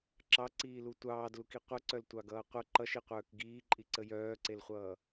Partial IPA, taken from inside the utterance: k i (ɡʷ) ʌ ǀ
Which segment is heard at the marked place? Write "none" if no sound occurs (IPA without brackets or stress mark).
qʷ